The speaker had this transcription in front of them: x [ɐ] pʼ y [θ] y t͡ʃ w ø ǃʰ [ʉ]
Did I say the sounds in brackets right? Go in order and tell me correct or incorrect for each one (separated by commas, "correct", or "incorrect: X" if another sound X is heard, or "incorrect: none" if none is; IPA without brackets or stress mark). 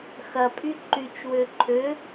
correct, incorrect: ǃ, incorrect: ø